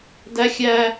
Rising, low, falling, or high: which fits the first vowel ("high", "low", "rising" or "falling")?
high